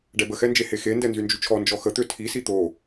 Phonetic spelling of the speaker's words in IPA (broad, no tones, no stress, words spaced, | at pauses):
ɖɛbəxɛnd͡ʒe hexendɛ nzynd͡ʒyt͡ʃʰɔ nd͡ʒɔxət̪ø tʰi sit̪o